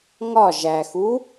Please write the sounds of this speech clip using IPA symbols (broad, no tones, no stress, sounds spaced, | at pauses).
ŋ ɒ ʒ æ x u